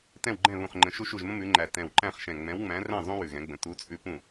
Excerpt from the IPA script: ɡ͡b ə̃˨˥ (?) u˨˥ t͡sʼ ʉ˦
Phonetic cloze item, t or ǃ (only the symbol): t